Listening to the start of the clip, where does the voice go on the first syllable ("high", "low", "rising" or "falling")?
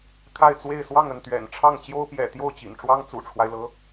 falling